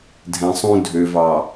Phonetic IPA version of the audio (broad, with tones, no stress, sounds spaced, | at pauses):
dʱ ɛ̃˨ sˤ ũ˦ dʱ ø˨ v ɑ˨